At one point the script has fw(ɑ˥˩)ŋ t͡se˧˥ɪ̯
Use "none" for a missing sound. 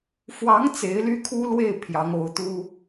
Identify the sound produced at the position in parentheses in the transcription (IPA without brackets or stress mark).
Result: ɑ˧˥